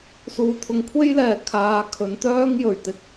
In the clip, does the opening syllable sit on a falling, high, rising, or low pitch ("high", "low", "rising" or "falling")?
low